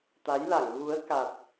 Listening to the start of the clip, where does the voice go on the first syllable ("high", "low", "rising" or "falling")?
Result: rising